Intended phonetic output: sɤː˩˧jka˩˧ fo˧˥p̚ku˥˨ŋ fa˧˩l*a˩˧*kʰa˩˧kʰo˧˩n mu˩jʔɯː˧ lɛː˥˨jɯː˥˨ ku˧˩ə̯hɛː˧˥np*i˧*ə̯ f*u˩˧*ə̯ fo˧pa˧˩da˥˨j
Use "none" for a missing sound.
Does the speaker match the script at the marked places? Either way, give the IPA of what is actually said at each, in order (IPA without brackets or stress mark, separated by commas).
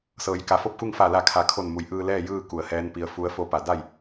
a˧˩, i˧, u˧˥